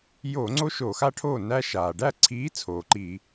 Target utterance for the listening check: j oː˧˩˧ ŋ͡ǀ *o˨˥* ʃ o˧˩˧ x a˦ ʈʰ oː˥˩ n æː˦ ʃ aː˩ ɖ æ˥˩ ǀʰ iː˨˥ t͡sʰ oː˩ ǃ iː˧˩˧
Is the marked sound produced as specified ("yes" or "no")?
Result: no